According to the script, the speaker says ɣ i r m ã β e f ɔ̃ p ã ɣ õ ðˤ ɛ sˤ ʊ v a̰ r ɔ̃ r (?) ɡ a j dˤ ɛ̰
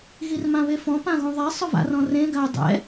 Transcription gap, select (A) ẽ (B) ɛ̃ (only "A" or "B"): A